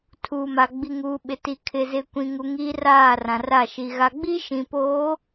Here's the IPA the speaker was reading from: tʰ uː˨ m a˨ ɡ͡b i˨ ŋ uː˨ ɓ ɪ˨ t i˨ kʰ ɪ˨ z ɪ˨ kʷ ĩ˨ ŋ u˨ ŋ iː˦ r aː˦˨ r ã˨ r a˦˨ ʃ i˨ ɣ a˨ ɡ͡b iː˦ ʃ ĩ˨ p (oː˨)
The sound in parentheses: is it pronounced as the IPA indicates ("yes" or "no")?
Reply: no